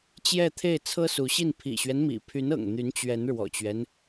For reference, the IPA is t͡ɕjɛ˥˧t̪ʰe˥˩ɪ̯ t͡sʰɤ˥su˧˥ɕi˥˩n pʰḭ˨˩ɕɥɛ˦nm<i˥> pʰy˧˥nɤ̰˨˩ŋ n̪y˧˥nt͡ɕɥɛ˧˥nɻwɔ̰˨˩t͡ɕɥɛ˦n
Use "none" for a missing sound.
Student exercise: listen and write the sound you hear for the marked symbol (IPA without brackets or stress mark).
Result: ḭ˨˩